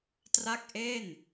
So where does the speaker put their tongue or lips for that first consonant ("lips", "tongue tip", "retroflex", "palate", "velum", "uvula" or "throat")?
tongue tip